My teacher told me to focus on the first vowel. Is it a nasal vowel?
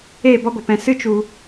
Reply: no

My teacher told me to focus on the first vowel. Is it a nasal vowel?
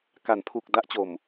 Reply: no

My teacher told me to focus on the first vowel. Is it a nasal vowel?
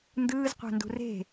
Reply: no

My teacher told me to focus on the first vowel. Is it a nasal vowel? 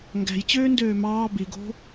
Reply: no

